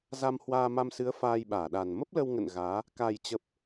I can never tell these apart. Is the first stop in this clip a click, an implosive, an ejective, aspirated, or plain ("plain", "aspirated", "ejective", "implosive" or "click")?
implosive